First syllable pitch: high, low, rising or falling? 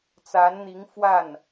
rising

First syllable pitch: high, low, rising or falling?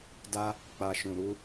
high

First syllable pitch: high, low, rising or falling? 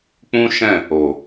high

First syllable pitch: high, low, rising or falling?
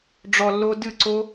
low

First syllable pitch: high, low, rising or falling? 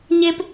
high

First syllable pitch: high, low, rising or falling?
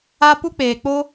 high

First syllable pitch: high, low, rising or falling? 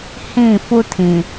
falling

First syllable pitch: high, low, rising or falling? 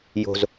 low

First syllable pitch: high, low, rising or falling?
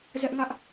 high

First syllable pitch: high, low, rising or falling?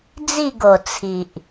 falling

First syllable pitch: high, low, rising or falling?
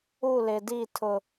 falling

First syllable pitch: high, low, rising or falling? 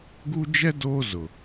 high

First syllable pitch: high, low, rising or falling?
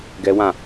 high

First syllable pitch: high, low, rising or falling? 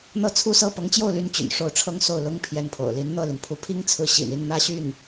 falling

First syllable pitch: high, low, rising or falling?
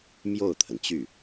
falling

